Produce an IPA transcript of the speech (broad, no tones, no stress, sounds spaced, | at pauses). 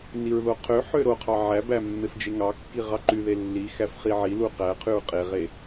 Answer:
n i ɹ ð o qʰ ø ħ ø ɾ o qʰ ɑ ʕ æ b æ mː e f d͡ʒ e ŋ ɑ kː i ʁ ɑ ǃ y ð e lː i x æ f χ i ʕ i l u q æ qʰ y ɹ qʼ e ʁ e